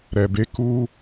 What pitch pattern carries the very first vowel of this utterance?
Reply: low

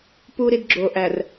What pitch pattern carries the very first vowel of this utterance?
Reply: high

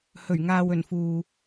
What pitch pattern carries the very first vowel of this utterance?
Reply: low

